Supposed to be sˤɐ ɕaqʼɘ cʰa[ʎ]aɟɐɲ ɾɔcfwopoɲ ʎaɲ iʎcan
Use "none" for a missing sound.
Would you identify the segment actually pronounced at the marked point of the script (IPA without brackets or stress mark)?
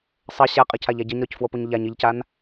ʎ